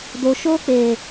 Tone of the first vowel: low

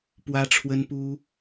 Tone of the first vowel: high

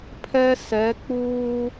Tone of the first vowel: high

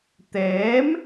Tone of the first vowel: rising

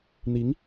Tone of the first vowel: rising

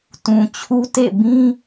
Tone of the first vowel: low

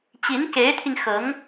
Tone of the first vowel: rising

